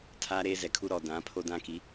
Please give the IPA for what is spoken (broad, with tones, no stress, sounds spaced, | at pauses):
tʰ aː˦ ɾ eː˦ z ɛ˨ kʰ u˦ ɾ ɔ˨ d ã˨˦ pʰ o˦ d ã˦ k i˨˦